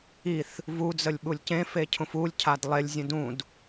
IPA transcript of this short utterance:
i θ | v u d͡z ə lʲ ɓ u lʲ c ẽ f e cʰ ũ f u lʲ cʰ a d lˠ e lʲ zʲ ə̃ d ũ d

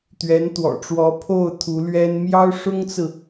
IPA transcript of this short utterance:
t̪ ɥ ɛ˧˥ n t̪ w ɔ̰˨˩ ʈ͡ʂ w ɔ˧˥ pʰ o˥˩ ʊ̯ t̪ʰ u˧˥ l ɥ ɛ˥ n m j ɑ˥ ʊ̯ ʂ ʊ˥ ŋ t͡s ɹ̩˨

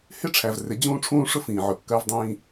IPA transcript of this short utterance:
h ɪ˦ ʈ͡ʂʰ æ˨ v r ɪ˨˦ d͡ʑ ũː˦ ʈ͡ʂʰ ũː˦ ʂ ʊ˦ f ĩː˨ ʕ ʊ˨ kː ɜ˦ v dˤ ĩː˦

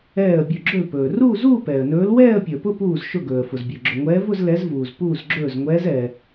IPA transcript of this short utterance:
ɛː˧˩ ə̯ bʲ ɵ˧˩ ɡ͡ǁ ɵ˧˩ l p ɵː˩ r uː˥˧ z uː˥˧ p ɛː˩ ə̯ n ɵː˨˦ l w ɛː˥˧ ə̯ pʲ ə˞˩ p ʊ˥˧ p uː˧˩ z ʃ ʊ˧˩ ɡ ɵː˩ ə̯ f ʊ˩ z bʲ ɵ˩ ɡ͡ǁ ɵ˩ ŋʷ ɛː˨˦ v ʊ˥˧ z l ɛ˨˦ z v uː˩ z p uː˧˩ z ɡ͡ǁ ɵː˧˩ z ŋʷ ɛː˨˦ z ɛː˩

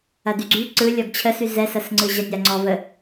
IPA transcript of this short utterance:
ɐ d y ɡ͡ǀ y ǀ ɯ lʲ ɔ ɡ t͡ɕʰ ə s y z ɛ s ɐ s ŋ͡ǀ ɯ ʑ ɐ nʲ a ŋ͡ǀ ɔ v ə

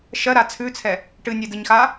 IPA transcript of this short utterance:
ʃ ɜ ɾ a t͡sʰ ʉ t͡sʰ ɛ | ʈ ɨ nʲ ɜ d ɨ ɲ x a

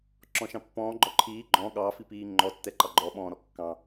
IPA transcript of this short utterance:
ǁ ɔ̃ ʃ ɑ̃ pː ɔ̃ː ɡ͡ǃ ɔ ǃʰ iː ɡ͡ǃ ɔ̃ ɠ ɑ f i p iː ŋ͡ǃ ɔ tː ɛ ǃ ɑ ɡ͡ǃ ɔ ɓ ɔ̃ː ɾ ɔ kː ɑ̃

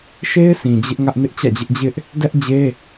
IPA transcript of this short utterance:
ʃ e˦ ɪ̯ sʰ ĩ˨ d͡ʑ ɪ˦ ʔ ŋ ä˦ ʔ n ɪ˦ ʔ t͡ɕ ä̰˦˨ d͡ʑ ɪ˦ ʔ d͡ʑ ɪ˦ ʔ | d ɛ˦ ʔ d͡ʑ e˦

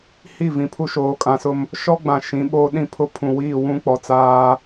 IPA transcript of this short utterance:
h i˦˨ v ĩ˨ pʰ u˦ ʃ oː˨˦ kʼ ã˨ s ʊ˦ m | ʃ ɔ˦ ɡ͡b ã˨ ʃ ĩ˨˦ ɓ oː˦ ɗ ĩ˦ pʰ ʊ˦ pʰ ũ˨ w iː˦˨ w ũ˦ k͡p ɔ˨ t͡s aː˦

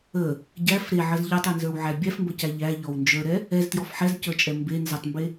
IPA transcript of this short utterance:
ə | ɟ æ f ɾ e ʕ ə z ʎ ə˞ tˤ e n z ə˞ w ʕ æ bʲ æ f m b ə c æ ʎ æ ʎ ɔ w n d͡ʒ ə˞ ɾ ɛ | ɛ z t j ɔ f ħ ɛ z c ə˞ t͡ʃʼ ɛ m b e n z ə tˤ m b e

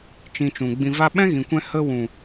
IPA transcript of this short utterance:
t͡ʃ ĩ˧ t͡ʃ ũ˨ ɡ͡b ĩ˧ v a˦ ɓ ɛ̃˦ ɣ ĩ˨ kʷ ɛ̃˧ h ə˧ w ũ˨

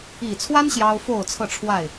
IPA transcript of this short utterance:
i˨˩ t͡sʰ w a˦ n ɕ j ɑ˦ ʊ̯ f o˥˨ ʊ̯ t͡sʰ ɤ˥˨ ʈ͡ʂʰ w a˥˨ ɪ̯

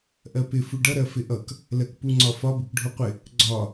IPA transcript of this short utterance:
ʔ ɜ p ɪ f u ɖ ʌ ɾ ɜ f ɪ ʔ ʌ k | l ɜ k p u ŋ͡ǀ ɒ f ɒ b ɪ k ɖʱ u qʷ ɪ | ɡ͡ǀ ɒ

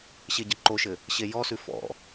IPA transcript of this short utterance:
ɕ e ɟ ə ǃ o ʃ ɘ | ɕ e j ɔ s ʉ f ɔ̰

